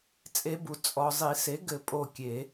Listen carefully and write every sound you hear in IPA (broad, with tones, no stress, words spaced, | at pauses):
t͡sʼe˧˥bu˨ t͡sʼɔ˨ zˤi˨˩˦se˩˥ɡɘ˨˩˦ pʼo˦˨kʲe˨˩˦